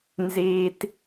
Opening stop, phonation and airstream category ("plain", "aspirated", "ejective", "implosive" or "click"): plain